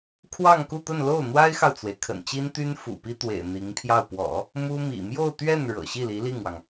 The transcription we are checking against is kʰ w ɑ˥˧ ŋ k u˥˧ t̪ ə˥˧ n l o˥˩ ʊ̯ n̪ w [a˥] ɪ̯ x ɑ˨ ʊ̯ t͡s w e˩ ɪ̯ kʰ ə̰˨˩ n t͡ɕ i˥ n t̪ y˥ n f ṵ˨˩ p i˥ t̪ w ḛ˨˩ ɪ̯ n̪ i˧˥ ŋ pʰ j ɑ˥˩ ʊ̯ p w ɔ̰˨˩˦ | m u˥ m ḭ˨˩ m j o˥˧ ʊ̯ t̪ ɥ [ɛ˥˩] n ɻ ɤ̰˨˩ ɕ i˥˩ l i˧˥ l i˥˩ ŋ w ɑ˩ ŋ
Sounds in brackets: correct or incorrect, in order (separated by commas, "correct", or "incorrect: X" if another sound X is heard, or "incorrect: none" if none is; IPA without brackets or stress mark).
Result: correct, correct